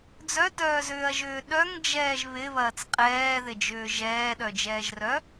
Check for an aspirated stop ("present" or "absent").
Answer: absent